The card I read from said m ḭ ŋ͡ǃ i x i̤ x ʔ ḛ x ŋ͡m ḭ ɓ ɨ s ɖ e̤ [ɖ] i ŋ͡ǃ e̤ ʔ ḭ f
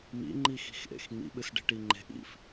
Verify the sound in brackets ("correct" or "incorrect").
incorrect